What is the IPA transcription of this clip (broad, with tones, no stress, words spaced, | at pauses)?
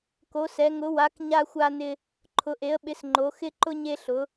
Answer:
ko˨˥sɛ˨˥ ŋʊ˨˥wa˨˥k ɲa˥xʷa˥nɪ˥ | ǃʰʊ˨˥ʔe˨˥ə̯ɓɪ˨˥s ŋ͡ǃo˨˥xɪ˥ǃʊ˥ ɲe˥ɬʊ˨˥